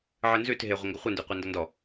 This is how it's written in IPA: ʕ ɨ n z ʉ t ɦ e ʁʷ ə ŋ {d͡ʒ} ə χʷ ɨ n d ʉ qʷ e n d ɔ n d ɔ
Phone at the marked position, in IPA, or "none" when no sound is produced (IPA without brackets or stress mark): ɡ